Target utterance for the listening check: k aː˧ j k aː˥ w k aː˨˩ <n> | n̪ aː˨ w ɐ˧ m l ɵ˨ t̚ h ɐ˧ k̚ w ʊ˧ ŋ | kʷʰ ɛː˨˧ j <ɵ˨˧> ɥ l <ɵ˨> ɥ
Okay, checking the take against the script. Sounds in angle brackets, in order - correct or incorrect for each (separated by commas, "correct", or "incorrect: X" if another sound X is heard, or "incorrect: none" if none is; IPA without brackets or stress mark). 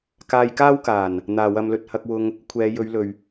correct, correct, correct